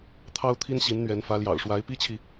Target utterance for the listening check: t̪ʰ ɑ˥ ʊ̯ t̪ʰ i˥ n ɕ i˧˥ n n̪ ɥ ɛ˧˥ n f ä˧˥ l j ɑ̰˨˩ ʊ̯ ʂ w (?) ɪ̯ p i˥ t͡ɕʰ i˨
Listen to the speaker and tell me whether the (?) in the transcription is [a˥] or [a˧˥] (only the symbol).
a˧˥